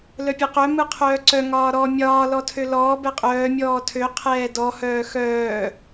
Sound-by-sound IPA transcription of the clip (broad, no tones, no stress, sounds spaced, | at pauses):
l œ pʲ ɯ q œ m ɯ qʰ œː ǀ œ ŋ ɒː ɾ ɔ mʲ ɒː l ɔ tʰ ø l ɔː b ɛ qʼ œː mʲ ɔː tʰ ø qʰ ɛː d ɔ h œː x œː